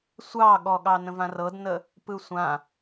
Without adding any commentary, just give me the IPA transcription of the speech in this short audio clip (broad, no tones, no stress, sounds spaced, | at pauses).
sʷ ɑ ɠ ɔ ɠ ɑ n ə̃ v ã r ɤ d n ə | p ɯ sʷ ã